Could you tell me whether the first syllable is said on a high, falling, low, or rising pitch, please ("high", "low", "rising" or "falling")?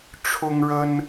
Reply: high